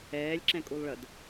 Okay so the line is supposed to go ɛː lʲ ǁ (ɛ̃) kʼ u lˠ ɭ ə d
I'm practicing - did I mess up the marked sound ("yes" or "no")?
no